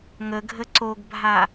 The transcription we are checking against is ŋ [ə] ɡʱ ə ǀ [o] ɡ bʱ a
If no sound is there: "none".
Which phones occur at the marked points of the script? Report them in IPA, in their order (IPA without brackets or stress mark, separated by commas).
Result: ə, o